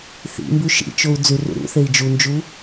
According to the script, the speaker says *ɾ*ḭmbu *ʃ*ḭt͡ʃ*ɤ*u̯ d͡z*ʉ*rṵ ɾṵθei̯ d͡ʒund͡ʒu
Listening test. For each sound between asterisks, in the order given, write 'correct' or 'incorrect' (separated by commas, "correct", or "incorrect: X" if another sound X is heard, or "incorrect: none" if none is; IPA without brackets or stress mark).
incorrect: θ, correct, incorrect: o, correct